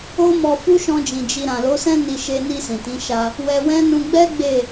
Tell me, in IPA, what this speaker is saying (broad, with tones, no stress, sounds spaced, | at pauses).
o˦ m ɔ˧ f u˦ ʃ ɔ̃˧ d͡ʒ ĩ˨ d͡ʒ i˧ ɾ ã˨ l o˨˦ s ɛ̃˦ n i˧ ʃ e˧ n i˧ s ĩ˨ t ĩ˨˦ ʃ a˧ | w ɛ˧ w ɛ̃˦ n ũ˧ ɡ͡b ɛ˦ ɡ͡b e˦˨